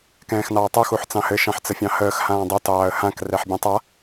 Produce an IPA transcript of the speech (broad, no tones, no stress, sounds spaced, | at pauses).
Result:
k ɛ̃ː x n ɑː tˤ o x u ħ t͡s ɑ̃ h ɘ ʃ ɑ̃ ħ t͡s ə fʲ ɑ̃ h əː x h ãː dˤ o t ɑː ə̯ h ã k r ɛ ħ bʲ ɛ̃ tˤ a